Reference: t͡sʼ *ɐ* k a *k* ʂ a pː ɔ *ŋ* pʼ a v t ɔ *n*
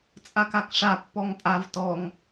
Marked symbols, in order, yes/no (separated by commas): no, yes, yes, no